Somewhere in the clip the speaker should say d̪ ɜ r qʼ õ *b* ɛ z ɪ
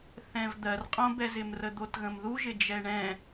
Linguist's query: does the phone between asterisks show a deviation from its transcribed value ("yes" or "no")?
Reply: no